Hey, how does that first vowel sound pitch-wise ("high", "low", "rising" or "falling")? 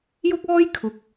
high